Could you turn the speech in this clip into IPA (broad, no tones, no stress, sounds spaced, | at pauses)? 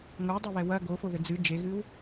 ŋ o w dˤ o β ɛ w ɐ ɡ o f o ð ɘ d͡z ɨ d͡ʒ e ɣ ɨ w